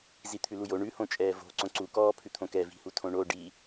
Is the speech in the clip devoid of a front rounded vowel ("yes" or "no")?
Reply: yes